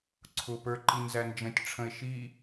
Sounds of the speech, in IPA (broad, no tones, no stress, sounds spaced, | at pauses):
ǀʰ ʊ p ə˞ ǃ i n z æ n d͡ʒ ə̃ tʲ ʈ͡ʂʰ ə̃ e̯ ʃ i